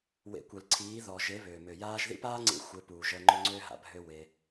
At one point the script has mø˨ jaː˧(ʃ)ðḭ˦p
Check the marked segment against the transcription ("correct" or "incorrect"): incorrect